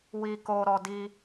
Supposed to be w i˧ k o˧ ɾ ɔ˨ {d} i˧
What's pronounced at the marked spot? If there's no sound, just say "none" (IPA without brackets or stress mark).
d